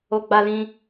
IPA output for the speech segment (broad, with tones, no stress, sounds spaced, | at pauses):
o˧ ɡ͡b a˧ l ĩ˧